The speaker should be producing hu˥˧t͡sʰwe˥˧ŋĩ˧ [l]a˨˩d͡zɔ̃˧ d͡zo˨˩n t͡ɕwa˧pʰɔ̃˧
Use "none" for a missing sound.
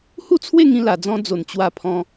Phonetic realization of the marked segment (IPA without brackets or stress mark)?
l